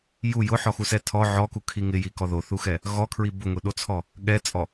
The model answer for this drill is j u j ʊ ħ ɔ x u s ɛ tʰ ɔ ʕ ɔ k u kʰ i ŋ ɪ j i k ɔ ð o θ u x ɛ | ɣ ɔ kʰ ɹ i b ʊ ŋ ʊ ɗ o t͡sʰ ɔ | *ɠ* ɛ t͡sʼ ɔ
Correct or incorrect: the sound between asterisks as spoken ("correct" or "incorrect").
correct